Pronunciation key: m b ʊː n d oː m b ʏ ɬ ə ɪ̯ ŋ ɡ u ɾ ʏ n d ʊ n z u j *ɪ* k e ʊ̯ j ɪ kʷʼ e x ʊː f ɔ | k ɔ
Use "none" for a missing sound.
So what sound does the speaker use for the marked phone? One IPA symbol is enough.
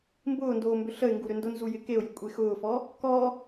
ɪ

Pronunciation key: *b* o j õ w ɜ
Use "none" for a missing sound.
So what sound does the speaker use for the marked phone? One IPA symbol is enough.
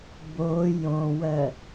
b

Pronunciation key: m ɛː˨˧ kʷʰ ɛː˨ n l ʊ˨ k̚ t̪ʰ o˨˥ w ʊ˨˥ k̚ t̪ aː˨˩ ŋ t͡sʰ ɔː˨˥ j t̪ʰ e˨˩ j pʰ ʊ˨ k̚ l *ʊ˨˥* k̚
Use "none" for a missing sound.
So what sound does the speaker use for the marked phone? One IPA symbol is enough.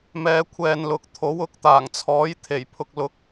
ʊ˨˥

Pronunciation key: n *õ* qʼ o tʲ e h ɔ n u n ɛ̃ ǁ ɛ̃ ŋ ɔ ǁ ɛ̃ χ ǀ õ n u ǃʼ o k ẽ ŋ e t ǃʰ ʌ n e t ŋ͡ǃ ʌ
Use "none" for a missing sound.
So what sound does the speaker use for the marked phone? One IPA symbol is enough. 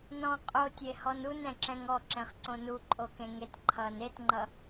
ɔ̃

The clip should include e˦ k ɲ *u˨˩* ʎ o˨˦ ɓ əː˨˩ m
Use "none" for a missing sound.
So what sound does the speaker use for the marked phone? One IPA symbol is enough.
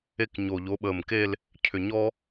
o˨˩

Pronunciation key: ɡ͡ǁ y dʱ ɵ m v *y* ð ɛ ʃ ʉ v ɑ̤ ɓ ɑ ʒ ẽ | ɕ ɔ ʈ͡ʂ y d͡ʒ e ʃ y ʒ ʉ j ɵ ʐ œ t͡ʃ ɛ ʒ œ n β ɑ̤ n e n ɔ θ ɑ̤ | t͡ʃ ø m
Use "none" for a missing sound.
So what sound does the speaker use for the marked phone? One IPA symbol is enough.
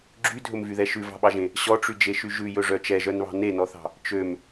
y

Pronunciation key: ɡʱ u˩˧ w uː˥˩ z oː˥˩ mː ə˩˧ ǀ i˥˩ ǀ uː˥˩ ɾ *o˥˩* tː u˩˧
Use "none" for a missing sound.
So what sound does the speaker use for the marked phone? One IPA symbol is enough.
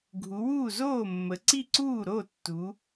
o˥˩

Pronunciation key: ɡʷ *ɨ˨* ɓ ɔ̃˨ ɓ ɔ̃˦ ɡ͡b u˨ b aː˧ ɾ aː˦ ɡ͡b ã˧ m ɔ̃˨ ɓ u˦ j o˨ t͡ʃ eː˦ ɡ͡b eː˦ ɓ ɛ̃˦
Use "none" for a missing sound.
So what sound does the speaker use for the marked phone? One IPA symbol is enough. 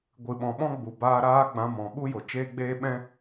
ɨ˨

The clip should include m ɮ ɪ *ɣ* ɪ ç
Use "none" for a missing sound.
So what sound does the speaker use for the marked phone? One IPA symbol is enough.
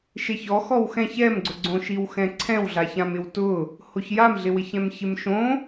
w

